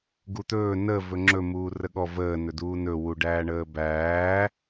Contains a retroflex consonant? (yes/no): yes